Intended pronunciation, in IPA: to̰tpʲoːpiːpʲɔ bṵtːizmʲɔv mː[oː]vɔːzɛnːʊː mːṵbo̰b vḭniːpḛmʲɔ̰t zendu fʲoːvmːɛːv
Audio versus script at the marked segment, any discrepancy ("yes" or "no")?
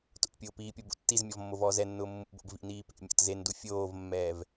yes